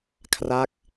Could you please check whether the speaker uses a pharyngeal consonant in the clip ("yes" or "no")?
no